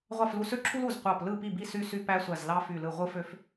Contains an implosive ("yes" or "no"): no